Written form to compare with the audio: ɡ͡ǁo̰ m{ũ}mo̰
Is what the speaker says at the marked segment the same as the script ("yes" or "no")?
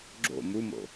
no